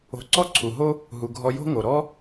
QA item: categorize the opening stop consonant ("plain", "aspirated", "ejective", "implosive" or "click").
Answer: click